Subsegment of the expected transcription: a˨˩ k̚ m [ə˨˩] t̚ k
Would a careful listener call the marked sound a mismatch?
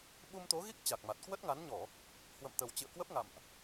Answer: yes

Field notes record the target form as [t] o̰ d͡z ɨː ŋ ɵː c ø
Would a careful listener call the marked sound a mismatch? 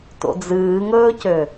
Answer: no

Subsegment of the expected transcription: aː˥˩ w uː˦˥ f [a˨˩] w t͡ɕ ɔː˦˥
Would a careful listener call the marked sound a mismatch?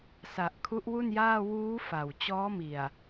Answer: no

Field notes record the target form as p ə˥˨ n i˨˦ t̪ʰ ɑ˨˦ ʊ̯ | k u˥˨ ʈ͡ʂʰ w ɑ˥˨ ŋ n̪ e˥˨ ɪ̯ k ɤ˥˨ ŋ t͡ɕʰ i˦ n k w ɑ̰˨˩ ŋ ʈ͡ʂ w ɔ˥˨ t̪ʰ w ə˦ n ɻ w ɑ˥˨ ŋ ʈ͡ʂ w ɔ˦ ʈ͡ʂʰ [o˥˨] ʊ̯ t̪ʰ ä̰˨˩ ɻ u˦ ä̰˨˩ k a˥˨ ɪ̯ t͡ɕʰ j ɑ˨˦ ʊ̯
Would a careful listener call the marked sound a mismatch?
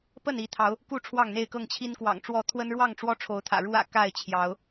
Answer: yes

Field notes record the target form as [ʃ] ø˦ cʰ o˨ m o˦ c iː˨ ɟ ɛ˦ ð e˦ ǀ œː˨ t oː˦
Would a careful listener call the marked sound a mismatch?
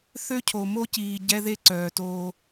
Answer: yes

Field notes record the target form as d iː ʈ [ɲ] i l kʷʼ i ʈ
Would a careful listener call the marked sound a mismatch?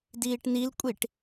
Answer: yes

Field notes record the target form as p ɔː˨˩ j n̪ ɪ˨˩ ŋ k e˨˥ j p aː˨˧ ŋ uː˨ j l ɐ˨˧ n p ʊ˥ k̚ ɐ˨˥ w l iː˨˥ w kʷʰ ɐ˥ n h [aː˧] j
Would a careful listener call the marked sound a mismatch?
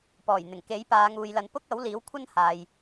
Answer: yes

